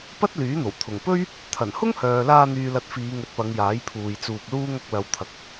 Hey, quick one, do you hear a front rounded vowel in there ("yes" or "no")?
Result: yes